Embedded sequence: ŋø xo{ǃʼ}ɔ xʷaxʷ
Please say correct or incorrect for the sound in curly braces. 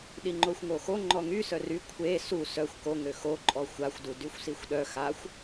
correct